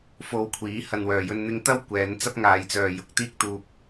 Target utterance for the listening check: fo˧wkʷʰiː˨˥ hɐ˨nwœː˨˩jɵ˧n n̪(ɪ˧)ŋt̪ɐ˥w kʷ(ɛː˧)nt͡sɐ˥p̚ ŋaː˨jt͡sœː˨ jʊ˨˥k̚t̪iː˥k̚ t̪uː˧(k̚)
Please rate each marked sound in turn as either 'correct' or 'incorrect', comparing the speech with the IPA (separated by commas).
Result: correct, incorrect, correct